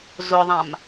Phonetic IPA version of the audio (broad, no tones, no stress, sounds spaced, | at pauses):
z ʊ ðˤ ã m